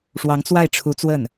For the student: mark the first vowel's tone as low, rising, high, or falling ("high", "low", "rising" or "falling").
rising